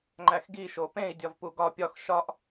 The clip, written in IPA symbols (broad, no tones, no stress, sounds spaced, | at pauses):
ŋ͡ǃ æ x ɡ i ʃ o p ẽ i̯ dʲ ɒ v p u ɡ ɒ pʲ ɒ x ʃ ɒ ʔ